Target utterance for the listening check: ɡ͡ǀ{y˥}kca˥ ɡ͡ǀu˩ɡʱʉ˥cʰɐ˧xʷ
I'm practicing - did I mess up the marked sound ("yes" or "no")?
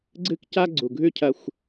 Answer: yes